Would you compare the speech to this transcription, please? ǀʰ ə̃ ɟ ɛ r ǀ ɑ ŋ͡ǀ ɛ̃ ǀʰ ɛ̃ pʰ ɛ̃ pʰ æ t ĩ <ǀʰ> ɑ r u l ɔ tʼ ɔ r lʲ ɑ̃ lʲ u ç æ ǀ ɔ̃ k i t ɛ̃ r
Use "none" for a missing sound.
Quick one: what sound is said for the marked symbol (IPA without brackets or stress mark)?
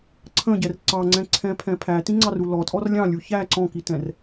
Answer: ŋ͡ǀ